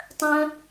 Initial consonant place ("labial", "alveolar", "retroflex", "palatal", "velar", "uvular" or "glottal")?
alveolar